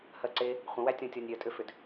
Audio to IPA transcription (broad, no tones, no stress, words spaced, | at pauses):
hɜǀe | χʷə̃wætʲɔ̃ tʲɔnʲɾʲɜtʼʏfʏd